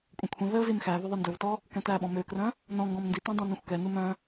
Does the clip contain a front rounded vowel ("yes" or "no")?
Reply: yes